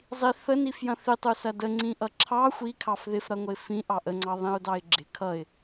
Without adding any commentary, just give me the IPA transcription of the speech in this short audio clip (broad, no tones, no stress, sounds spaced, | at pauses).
zˤ i θ ə n i f j ɐ̃ θ i tˤ u s ɐ d ə ŋ͡ǀ ĩ ʔ ʌ ǁʰ ɑ xʷ i kʰ ɑ f ð ɪ f ɾ ɐ ŋʷ ə ɪ̯ f ĩ ʔ ɑ ʔ ə ŋ͡ǀ ɑ ðˤ ĩ ʊ̯ d ɑ ɪ̯ ɡ͡ǁ ɪ kʰ ʌ ɪ̯